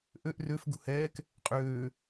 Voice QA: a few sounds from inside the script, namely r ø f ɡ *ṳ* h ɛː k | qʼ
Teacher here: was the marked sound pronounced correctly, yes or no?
yes